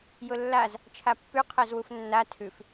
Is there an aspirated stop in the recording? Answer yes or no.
yes